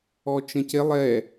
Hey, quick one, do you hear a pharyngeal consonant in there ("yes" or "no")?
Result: no